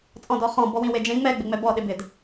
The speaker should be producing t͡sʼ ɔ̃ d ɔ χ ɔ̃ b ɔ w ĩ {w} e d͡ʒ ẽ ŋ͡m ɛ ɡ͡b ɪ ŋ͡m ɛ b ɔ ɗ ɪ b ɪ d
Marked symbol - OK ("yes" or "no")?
yes